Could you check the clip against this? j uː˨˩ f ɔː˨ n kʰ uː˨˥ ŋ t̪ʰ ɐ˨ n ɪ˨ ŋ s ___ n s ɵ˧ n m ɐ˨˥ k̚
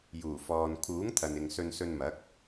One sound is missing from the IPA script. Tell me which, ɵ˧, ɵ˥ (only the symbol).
ɵ˧